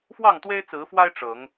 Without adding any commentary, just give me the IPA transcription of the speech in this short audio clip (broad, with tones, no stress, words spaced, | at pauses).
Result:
fwɑ˥˨ŋt̪we˦ɪ̯t͡sɹ̩˨˦fwa˦ɪ̯ ʈ͡ʂɤ˨˦ŋ